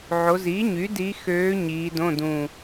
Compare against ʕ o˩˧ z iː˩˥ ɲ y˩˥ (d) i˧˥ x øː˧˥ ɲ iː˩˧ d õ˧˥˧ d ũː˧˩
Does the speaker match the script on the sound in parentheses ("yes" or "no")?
yes